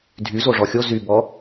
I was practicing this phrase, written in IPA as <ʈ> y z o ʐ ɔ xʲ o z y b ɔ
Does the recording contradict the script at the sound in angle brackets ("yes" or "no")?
yes